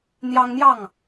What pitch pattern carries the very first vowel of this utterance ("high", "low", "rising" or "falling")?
high